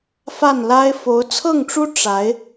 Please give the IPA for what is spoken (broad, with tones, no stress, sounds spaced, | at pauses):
f a˥˩ n l a˥ ɪ̯ f o˧˥ ʊ̯ t͡sʰ ɤ˥˩ ŋ ʈ͡ʂ u˥ ʈ͡ʂ a˧˥ ɪ̯